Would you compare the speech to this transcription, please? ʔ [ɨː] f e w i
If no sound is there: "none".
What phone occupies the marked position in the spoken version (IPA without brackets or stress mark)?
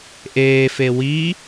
eː